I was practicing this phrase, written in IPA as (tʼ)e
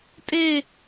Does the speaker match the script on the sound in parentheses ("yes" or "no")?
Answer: yes